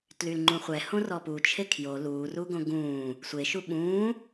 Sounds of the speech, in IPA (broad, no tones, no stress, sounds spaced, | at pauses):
t l y l ŋ͡ǃ ũ χʷ ɛ h õ r ɔ p u t͡ʃʰ e kʰ j o l uː r u ɡ õ ɡ ũː | sʷ e ʃ u ɓ ũː